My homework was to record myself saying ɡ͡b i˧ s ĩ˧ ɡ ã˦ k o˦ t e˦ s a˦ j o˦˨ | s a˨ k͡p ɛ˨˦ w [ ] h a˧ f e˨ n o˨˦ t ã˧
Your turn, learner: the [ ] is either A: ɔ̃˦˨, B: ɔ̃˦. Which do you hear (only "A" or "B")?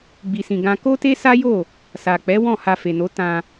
A